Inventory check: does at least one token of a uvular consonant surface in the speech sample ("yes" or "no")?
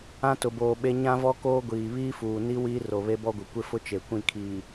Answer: no